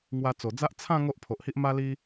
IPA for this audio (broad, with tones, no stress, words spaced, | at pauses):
ŋwa˧t͡so˨˩d͡za˦ʔ t͡sʰã˥˧ ŋo˦ʔpʰo˨ʔhi˦ʔ ma˦li˦